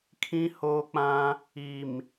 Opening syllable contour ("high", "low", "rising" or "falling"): high